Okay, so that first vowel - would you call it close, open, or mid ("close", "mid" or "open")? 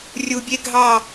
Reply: close